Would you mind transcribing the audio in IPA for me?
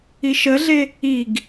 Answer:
i ʃ ə ɮ e | i ɡ

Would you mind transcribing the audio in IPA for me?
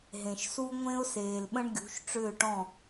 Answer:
ɦ ẽ˨ ʃ s u˦ ŋʷ ẽ˦ ʊ̯ s eː˨ l ɓ ə̃˦ ɳ ɡʲ ṳ˨˦ ʃ ʈ͡ʂ ʏː˦˨ ʈ ɔ̃˦˨

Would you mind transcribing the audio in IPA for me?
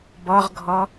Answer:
b ɔ ʁ ɡʱ ɔ

